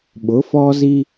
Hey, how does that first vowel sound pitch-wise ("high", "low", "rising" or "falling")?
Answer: rising